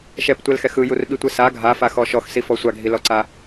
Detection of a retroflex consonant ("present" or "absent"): absent